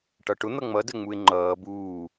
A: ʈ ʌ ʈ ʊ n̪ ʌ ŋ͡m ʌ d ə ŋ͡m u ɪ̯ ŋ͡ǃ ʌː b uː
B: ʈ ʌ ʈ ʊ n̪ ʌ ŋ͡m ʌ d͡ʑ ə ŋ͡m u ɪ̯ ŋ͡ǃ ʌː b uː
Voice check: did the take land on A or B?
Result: A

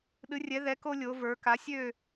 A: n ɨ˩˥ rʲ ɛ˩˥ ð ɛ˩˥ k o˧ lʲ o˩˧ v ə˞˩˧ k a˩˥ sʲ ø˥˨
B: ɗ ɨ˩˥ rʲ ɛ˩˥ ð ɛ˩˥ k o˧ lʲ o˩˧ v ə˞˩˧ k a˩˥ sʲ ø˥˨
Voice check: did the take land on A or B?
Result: B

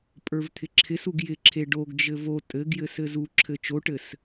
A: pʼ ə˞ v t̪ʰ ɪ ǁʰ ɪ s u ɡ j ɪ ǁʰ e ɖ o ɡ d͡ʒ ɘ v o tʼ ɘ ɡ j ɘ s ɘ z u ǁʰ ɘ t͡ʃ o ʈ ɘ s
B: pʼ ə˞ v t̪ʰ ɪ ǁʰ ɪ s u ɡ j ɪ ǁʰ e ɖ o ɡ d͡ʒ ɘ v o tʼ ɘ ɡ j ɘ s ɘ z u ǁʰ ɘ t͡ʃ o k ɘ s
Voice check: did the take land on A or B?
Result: A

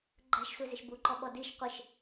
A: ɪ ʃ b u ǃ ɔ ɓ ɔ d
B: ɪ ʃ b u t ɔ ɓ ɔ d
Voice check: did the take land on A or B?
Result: A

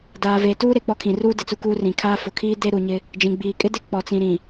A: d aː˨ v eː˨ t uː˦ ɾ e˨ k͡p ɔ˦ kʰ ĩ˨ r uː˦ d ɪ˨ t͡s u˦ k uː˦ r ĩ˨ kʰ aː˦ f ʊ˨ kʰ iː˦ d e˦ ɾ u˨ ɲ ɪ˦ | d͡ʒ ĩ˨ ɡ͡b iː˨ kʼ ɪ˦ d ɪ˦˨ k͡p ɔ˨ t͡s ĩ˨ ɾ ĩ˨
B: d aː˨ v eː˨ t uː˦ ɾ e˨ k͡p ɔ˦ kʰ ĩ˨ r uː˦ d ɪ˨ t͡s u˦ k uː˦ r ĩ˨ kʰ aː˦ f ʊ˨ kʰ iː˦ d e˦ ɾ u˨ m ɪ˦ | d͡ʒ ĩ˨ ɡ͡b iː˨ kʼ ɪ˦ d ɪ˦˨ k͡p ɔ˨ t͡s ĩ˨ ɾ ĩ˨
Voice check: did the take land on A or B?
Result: A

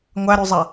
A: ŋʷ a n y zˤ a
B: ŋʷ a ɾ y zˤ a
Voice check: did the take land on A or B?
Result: B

